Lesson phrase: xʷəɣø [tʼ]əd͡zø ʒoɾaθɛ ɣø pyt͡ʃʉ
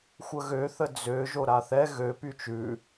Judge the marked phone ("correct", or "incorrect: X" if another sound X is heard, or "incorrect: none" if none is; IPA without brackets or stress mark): incorrect: θ